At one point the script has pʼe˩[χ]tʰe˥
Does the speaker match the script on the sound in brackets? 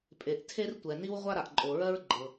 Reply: no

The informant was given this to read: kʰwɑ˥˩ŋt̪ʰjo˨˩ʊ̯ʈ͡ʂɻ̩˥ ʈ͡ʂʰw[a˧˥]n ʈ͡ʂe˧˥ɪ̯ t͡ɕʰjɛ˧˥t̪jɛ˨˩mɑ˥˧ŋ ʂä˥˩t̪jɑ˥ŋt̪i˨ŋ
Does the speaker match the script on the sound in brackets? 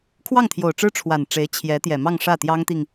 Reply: no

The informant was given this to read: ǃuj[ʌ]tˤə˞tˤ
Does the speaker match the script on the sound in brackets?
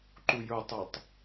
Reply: no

